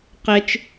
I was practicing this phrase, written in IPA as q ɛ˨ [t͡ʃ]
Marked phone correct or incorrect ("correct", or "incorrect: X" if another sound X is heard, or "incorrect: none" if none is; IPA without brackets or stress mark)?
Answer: correct